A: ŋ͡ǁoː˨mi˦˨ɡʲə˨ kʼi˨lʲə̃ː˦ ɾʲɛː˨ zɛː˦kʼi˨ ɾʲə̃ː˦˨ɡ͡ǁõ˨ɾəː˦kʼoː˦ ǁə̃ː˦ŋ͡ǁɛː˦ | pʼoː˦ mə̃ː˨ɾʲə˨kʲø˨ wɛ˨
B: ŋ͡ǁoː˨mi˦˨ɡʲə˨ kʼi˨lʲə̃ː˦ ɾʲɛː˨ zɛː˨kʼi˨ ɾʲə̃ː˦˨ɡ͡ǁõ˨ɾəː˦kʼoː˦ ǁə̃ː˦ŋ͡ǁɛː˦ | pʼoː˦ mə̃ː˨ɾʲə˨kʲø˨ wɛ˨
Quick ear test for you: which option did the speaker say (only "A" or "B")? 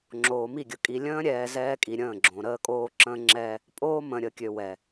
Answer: A